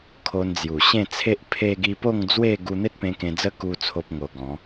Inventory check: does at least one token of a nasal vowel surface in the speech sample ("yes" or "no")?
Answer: yes